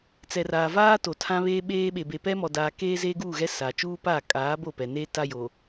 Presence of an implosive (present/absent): present